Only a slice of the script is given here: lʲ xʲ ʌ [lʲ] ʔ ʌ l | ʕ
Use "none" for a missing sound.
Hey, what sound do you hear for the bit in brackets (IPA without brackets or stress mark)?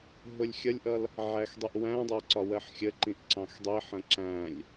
lʲ